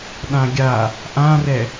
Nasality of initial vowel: nasal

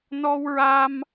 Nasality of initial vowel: oral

